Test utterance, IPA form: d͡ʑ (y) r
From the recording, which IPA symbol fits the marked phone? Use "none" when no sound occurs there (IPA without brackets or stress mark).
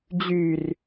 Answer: y